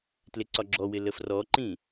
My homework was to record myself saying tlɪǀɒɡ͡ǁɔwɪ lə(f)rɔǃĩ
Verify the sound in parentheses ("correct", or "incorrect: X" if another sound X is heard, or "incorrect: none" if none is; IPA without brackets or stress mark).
correct